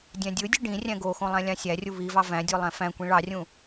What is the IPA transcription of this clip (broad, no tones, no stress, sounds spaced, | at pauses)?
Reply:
dʲ æ̃ dʲ ɯ dʲ ɯ ɖ ĩ rʲ æ̃ ɡ o x õ lˠ æ̃ lʲ ɑ̃ sʲ æ rʲ u β i v ɑ v æ̃ dʲ o lˠ æ̃ f æ̃ kʷ ĩ ɭ ɑ rʲ ũ